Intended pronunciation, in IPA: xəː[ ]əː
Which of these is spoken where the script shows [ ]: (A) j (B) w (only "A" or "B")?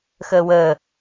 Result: B